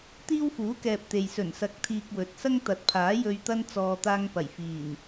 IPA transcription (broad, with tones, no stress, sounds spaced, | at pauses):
t̪ iː˥ w f uː˨˥ k ɛː˨ p̚ t̪ e˨ j s ɵ˨˩ n s ɐ˨˥ k̚ t̪ʰ iː˨ k̚ w ɵ˨ t̚ s ɐ˥ ŋ t̪ ɐ˨˥ t̚ pʰ aː˨˥ j ɵ˧ ɥ t̪ ɐ˥ n t͡s ɔː˨ t̪ aː˧ ŋ p ɐ˨˩ j f iː˨˩ n